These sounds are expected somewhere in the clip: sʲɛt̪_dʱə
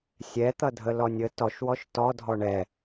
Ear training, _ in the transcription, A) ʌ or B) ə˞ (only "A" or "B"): A